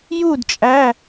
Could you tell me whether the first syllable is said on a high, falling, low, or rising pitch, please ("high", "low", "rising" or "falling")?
falling